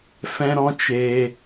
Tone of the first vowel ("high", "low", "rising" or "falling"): high